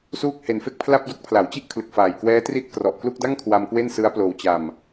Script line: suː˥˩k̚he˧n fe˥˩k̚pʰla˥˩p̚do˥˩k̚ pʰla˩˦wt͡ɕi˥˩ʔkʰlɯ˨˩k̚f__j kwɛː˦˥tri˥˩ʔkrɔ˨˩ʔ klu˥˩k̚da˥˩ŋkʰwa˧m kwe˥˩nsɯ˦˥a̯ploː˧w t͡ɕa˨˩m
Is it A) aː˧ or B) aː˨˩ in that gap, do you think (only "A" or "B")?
B